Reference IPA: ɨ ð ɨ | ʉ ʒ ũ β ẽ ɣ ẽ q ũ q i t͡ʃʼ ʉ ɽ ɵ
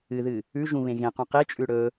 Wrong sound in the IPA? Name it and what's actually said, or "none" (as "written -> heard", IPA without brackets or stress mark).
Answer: none